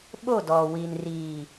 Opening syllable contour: falling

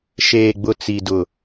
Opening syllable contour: low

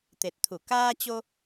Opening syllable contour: low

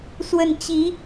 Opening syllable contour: falling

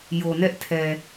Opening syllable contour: low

